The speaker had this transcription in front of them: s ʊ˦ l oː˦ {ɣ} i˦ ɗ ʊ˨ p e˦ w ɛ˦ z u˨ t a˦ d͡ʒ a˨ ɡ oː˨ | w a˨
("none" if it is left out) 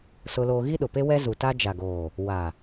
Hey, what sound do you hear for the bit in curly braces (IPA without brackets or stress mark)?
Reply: ɣ